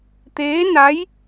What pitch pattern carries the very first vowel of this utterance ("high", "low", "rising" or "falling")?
rising